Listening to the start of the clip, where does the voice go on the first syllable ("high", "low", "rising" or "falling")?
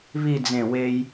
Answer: falling